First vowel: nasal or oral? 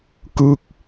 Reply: oral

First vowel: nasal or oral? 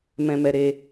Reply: nasal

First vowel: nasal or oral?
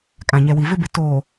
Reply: nasal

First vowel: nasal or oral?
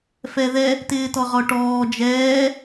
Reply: oral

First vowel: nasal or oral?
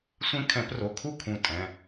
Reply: nasal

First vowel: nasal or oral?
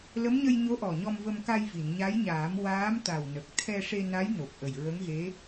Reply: oral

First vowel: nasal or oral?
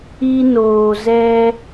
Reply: oral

